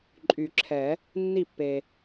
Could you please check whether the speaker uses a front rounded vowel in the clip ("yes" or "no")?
yes